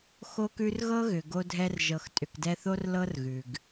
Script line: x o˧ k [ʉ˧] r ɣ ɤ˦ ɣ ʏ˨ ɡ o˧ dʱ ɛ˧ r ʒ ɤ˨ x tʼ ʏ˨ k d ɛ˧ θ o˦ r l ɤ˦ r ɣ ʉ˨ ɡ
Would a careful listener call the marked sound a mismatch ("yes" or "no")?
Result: no